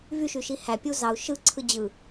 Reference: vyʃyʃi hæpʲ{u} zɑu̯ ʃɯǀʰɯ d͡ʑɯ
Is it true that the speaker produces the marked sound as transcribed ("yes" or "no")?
yes